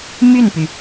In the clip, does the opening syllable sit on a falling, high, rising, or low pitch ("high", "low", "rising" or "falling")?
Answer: falling